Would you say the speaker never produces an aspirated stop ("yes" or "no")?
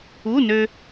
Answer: yes